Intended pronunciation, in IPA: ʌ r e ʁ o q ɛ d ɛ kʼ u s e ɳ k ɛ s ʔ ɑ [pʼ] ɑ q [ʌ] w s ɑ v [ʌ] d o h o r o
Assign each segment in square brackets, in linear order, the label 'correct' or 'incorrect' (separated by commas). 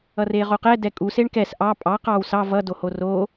correct, incorrect, correct